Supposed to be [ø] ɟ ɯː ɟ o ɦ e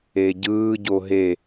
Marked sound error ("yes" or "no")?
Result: yes